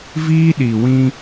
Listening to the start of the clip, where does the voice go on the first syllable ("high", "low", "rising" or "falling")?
high